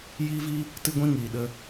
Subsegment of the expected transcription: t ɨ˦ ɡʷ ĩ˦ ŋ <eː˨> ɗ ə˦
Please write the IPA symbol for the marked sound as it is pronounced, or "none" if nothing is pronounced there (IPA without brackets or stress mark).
iː˨